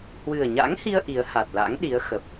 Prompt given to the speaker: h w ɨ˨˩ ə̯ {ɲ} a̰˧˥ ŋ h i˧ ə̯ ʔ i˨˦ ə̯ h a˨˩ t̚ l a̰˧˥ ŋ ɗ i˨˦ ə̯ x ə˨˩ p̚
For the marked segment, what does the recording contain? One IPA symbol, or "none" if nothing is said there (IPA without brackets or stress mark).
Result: ɲ